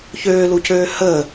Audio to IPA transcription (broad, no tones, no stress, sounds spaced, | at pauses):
ç øː l u c øː h əː